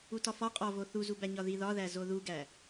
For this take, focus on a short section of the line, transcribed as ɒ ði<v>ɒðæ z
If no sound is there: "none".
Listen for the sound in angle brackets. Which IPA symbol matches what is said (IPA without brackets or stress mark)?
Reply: ð